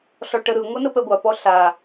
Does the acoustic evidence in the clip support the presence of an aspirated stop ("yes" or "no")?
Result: no